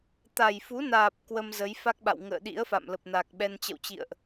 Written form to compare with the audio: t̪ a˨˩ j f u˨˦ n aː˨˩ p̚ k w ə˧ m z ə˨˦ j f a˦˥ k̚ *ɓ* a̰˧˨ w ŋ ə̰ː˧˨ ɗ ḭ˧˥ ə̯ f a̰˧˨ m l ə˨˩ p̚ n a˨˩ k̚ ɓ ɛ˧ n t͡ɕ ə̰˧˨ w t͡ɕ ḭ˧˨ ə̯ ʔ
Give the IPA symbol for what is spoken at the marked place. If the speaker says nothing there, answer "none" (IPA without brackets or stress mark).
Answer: ɓ